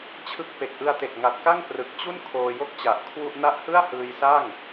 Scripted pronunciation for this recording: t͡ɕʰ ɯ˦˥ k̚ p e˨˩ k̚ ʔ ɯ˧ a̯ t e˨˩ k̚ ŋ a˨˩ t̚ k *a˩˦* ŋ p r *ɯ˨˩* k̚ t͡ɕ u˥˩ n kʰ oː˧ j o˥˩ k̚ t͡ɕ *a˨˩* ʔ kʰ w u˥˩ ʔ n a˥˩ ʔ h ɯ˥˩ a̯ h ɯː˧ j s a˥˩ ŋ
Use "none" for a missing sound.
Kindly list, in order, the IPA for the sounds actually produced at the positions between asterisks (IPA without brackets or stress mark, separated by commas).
a˥˩, ɯ˨˩, a˨˩